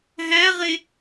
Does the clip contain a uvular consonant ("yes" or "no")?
yes